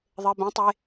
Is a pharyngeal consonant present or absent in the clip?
absent